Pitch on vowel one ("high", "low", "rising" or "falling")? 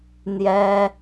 high